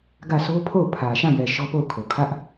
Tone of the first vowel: falling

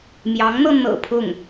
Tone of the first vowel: rising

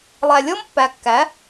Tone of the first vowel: low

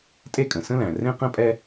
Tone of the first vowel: high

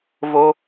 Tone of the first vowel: high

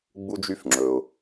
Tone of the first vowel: high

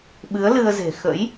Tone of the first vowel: rising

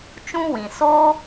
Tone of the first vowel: high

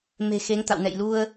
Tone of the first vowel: low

